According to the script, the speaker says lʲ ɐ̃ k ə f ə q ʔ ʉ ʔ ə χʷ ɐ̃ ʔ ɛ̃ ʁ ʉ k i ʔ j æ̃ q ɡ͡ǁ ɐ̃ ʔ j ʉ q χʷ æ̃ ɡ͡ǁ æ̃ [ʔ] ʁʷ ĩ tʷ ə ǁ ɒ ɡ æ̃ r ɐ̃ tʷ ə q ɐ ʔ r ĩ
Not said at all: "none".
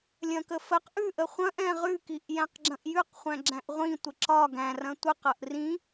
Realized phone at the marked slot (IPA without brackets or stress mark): ʔ